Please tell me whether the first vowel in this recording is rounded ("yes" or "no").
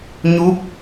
yes